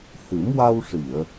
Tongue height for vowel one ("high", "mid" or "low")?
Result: high